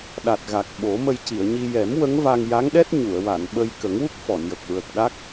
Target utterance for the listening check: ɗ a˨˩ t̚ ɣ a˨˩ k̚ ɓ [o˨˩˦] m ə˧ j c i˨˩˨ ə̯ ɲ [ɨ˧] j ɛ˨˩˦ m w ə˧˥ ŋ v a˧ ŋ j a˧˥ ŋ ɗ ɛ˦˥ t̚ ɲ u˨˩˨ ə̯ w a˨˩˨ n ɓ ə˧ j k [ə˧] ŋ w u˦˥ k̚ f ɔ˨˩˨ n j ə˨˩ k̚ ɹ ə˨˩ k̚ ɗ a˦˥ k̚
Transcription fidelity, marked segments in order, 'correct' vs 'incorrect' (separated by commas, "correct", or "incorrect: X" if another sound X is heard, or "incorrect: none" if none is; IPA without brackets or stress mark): correct, incorrect: i˧, incorrect: ə˨˩˦